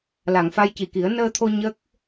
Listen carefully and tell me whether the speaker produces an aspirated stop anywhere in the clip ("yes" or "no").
yes